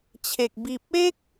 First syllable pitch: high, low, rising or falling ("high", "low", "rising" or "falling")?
low